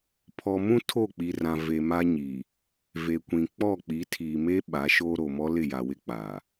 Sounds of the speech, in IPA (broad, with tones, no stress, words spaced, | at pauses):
pʰɔ˨mũ˦ tʰo˦˨k͡pi˨rã˨ ve˨ma˦ɲi˨ | ve˨kʷĩ˨ k͡pɔ˦˨k͡pi˨˦tʰiː˨ me˦ ɓa˨˦ ʃoː˦ɾo˨mɔ˦ lɪ˦˨ja˨wɪ˦ k͡pa˨